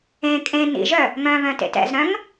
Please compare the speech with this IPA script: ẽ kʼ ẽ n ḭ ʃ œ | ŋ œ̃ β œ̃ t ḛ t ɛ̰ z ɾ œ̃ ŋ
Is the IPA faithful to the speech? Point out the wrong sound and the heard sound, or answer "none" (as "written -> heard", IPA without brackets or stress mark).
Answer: ʃ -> ʒ